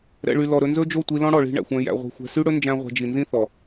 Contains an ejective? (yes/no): no